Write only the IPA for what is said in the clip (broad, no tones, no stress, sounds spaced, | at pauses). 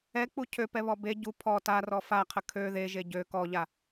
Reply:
ɛ k͡p u cʰ ø p ɛ β ɔ b e ɟ u pʰ ɔ t a r ɔ f a qʰ ə kʰ ø ð e ʒ e ɟ ø k ɔ ʎ a